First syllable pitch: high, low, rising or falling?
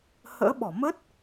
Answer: rising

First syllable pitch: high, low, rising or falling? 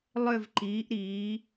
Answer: falling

